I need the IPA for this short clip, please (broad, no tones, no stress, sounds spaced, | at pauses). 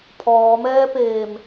pʰ ɔː m ɛː p eː m